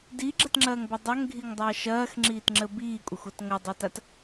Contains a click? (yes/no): yes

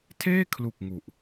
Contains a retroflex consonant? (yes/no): no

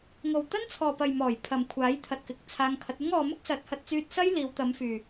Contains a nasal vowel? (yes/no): no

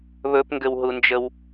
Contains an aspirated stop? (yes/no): no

